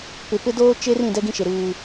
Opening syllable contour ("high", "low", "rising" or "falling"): low